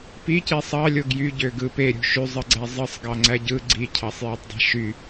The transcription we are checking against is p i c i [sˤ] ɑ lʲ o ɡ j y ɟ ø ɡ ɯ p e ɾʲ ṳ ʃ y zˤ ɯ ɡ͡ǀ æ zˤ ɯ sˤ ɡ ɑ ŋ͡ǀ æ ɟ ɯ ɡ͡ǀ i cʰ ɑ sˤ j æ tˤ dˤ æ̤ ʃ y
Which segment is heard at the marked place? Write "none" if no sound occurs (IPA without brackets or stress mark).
sˤ